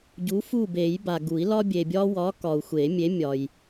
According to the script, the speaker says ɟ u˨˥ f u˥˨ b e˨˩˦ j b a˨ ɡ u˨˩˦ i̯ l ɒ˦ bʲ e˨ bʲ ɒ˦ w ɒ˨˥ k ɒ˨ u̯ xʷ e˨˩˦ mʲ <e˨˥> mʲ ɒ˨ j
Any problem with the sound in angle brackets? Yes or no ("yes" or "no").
no